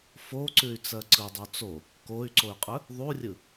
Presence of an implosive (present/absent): absent